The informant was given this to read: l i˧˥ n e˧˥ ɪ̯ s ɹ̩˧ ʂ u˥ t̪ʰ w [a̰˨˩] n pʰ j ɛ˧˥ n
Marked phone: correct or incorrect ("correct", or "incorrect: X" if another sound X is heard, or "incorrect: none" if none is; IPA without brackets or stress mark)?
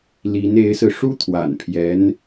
correct